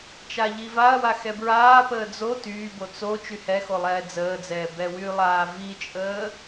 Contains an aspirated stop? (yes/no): no